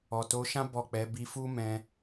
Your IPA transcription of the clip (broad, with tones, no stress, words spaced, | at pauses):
ɔ˨to˨˦ʃã˦ bɔ˦˨k͡pɛ˨˦ bi˧fu˦ mɛ̃˧